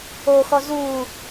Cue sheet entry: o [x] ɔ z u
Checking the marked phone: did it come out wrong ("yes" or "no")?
no